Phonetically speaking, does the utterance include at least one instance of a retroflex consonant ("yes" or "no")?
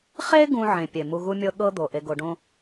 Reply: yes